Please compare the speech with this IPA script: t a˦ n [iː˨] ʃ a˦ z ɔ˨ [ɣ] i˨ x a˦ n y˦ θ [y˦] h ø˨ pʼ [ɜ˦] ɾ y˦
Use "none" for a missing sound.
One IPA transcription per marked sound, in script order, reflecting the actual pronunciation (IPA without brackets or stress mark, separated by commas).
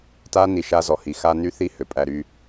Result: i˨, h, i˦, æ˦